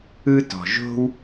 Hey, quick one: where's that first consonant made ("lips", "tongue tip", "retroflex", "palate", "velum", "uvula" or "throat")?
tongue tip